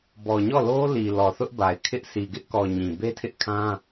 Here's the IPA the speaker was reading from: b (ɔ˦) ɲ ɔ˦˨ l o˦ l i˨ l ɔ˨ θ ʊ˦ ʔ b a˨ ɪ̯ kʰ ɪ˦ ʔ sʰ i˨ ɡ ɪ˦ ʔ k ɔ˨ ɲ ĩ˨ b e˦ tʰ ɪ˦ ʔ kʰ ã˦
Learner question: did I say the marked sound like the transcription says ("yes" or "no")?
no